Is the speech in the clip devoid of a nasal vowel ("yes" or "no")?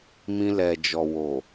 no